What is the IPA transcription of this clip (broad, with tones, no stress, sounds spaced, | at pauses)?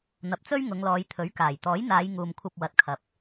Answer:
n̪ ɐ˨ p̚ t͡s ɵ˥ ɥ ŋ ʊ˨˧ ŋ l ɔː˨˧ j t̪ʰ ɵ˨˥ ɥ k aː˨˩ j t̪ ɔː˨˥ j n̪ aː˨˧ j ŋ uː˨ m kʷʰ ɐ˧ p̚ w ɐ˨ t̚ kʰ ɐ˨ p̚